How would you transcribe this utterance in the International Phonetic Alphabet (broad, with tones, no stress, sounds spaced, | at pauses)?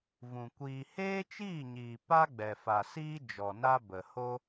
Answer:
v ũ˨ kʷ iː˧ h eː˦ t͡ʃ iː˦˨ ɲ iː˨ p a˦ ɡ͡b ɛ˨ f a˨ s iː˦ d͡ʒ ɔ˨ n a˦ b ə˨ h o˦